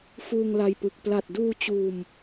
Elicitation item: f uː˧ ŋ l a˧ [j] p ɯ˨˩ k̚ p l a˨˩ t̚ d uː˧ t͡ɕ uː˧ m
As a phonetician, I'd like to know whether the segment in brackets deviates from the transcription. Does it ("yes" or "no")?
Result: no